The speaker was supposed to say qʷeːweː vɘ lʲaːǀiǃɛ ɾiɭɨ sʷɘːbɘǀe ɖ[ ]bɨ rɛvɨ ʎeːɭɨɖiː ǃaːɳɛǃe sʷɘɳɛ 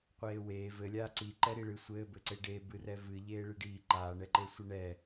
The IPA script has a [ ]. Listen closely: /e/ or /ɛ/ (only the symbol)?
e